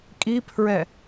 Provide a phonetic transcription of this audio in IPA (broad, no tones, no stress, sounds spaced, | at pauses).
kʼ i pʰ ɹ ɛ